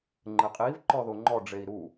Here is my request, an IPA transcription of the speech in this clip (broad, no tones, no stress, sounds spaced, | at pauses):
ŋ͡ǃ ɘ qʼ i v ǃ ɔ ð o ŋ͡ǃ ɔ ɖ͡ʐ e i̯ ɾ u